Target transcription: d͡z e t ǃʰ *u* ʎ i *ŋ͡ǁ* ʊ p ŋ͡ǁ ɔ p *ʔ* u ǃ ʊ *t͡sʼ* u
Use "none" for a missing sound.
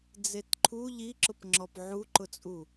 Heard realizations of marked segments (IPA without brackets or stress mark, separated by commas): u, ǁ, ʕ, t͡sʼ